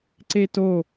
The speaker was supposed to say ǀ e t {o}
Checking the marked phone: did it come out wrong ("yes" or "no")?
no